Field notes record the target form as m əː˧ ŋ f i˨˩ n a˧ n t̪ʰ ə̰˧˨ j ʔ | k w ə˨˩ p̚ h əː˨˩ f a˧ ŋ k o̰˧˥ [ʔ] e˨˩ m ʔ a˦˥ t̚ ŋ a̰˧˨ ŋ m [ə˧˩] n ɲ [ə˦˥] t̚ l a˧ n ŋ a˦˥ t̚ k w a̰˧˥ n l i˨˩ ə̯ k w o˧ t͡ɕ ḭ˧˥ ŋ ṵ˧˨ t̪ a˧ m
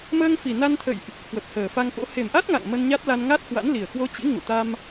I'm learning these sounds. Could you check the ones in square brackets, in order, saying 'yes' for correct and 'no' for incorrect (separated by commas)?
no, no, no